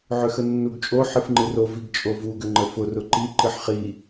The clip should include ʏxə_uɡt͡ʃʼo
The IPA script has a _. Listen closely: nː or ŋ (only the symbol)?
nː